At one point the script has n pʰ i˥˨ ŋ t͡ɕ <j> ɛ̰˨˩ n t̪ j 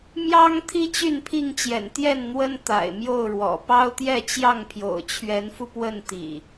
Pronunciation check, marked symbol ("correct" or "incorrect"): correct